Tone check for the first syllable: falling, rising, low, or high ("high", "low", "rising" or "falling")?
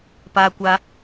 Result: high